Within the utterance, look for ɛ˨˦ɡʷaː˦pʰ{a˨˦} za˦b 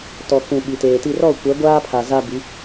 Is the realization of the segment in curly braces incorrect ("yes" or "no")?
yes